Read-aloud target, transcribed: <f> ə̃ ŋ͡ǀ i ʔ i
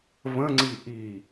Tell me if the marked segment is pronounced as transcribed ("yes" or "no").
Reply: no